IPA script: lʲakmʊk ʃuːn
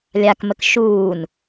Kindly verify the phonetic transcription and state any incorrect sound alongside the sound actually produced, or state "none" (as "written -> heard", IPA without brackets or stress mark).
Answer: ʊ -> ə